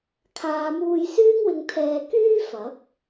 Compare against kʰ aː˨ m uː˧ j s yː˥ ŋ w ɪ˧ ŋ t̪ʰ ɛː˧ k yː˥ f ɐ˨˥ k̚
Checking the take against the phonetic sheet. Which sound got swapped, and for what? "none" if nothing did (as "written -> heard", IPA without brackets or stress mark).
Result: none